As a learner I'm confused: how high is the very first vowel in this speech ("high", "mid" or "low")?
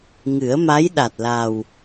high